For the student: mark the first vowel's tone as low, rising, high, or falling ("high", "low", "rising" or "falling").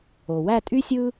low